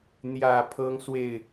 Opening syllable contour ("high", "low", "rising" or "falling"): low